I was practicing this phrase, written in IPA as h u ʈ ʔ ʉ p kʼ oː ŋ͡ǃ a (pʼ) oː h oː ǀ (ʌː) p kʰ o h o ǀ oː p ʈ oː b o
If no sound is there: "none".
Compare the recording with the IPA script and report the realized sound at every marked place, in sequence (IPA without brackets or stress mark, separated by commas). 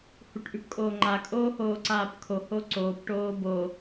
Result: kʼ, aː